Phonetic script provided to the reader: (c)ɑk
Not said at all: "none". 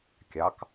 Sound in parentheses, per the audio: kʲ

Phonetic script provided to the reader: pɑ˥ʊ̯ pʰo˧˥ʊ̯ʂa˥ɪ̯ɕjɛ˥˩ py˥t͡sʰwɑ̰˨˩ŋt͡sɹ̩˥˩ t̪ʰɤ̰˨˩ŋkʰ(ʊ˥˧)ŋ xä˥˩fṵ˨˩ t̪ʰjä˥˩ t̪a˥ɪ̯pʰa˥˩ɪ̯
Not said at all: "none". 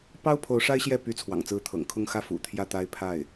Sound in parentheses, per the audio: ʊ˥˧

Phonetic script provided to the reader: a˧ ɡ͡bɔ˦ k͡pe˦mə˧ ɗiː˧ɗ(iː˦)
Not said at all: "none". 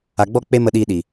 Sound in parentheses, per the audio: iː˨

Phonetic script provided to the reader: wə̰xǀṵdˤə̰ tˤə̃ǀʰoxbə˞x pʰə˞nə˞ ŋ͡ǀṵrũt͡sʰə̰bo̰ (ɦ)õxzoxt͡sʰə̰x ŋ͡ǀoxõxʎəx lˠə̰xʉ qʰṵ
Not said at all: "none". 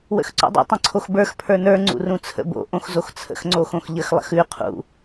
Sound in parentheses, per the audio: ʔ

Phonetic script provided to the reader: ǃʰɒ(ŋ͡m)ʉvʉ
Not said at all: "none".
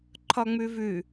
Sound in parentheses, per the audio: ŋ͡m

